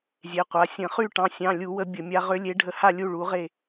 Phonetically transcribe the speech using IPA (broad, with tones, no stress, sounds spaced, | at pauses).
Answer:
zʲ e˩˧˩ qʷ a˩˧˩ sʲ ə̃˧˩˧ χ y˥˨ ʈ ɑ̃˩˧˩ sʲ ɑ̃˩˧˩ lʲ u˧˩˧ w ə˧˩˧ bʲ ə˧˩˧ mʲ a˨˥ ʁ ʏ˨˥ lʲ e˨˥ ɖʱ ə˨˥ h a˥˨ lʲ u˥˨ ɭ u˨˥ ʁ e˥˨